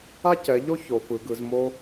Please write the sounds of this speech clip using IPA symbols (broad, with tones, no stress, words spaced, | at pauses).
a˥cɛ˩˧ʎo˥ ço˩˧fɯ˩˧ɡɯ˩˧z mo˥